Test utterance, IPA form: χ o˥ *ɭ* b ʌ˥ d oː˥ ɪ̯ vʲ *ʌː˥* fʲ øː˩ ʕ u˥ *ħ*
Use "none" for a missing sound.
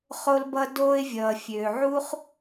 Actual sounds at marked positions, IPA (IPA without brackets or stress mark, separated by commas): l, ʌː˩, χ